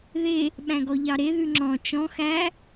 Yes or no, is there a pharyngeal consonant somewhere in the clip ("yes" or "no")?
no